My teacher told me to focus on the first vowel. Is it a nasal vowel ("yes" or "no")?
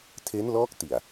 no